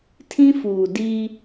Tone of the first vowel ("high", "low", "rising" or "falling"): high